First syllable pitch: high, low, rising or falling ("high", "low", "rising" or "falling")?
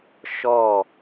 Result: falling